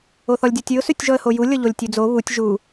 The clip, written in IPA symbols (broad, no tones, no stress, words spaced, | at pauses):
oθɔlʲdʲɔtʲʉʊ̯ sʉtʲʒɔə̯hoju lʲɤʎolʲtʲʉd͡zo βutʲ ʒu